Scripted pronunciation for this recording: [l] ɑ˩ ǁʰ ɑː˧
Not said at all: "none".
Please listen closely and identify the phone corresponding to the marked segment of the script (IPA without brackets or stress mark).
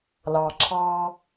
l